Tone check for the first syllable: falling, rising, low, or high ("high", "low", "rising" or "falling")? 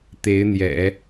rising